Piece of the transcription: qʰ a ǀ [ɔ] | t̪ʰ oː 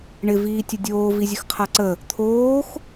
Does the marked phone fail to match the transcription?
yes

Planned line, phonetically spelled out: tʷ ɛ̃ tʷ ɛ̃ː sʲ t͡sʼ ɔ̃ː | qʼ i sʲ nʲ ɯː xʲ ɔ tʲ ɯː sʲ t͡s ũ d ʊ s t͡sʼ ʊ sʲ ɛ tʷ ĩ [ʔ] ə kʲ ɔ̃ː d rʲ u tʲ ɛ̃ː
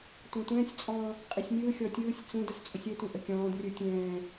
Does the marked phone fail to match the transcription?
no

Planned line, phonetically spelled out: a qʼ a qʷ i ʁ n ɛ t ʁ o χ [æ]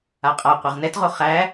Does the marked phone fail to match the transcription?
no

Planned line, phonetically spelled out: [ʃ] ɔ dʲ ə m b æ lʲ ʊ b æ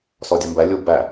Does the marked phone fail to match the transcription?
yes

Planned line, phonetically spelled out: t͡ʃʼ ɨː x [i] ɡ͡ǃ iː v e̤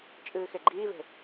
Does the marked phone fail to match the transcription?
yes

